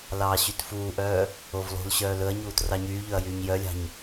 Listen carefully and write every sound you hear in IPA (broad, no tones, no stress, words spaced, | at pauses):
lɑːɕytfuːʔœː | ovlˠṳlɕœː lɵɐ̯ɲuːt rɑɲyːʎɵɐ̯ jyːɲjœlʲɑ̤ɲ